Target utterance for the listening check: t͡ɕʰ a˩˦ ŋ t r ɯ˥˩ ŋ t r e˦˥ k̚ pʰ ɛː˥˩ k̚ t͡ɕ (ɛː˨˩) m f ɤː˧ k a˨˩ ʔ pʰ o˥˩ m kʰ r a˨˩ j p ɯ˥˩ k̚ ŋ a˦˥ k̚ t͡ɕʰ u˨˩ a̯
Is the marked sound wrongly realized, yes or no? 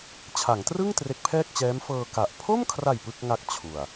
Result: yes